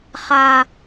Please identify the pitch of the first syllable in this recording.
high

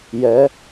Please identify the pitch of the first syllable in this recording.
rising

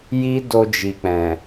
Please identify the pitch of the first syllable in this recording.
high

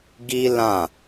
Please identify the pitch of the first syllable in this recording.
high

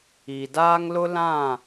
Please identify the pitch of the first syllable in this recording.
low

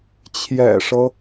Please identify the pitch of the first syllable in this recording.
low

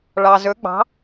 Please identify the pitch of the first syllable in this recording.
low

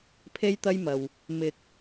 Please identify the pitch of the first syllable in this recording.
high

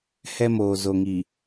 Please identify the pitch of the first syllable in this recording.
high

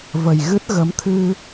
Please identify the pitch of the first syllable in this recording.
low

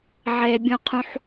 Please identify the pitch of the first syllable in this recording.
low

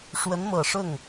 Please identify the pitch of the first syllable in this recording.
rising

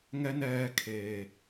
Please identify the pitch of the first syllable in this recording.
high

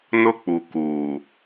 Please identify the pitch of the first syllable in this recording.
high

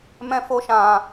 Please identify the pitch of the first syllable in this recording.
high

